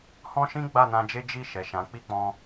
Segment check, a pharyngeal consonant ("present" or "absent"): absent